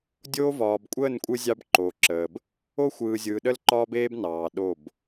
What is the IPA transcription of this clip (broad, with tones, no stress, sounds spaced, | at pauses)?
dʲ oː˦ v ɒː˨ b kʷʼ əː˦˨ n kʷʼ ɯ˦ zʲ ɑ˦ b ǃ oː˨ ǁ əː˨ b | o˦ xʷ ɯː˨ zʲ ɯː˨ ɗ ə˦ l ǃ ɒː˦ b eː˦ b n ɑː˨ ɗ o˦˨ b